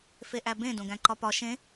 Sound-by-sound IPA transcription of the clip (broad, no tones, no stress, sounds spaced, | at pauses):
f e ʔ æ b ẽ d õ ɡ æ̃ ǃ ɒ p ɒ ʃ ẽ